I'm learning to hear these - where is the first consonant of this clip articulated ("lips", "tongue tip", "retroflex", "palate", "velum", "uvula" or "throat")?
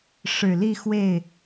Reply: retroflex